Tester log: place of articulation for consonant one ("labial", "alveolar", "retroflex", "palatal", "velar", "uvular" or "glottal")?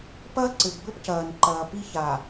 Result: labial